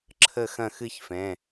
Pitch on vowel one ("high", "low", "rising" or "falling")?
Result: falling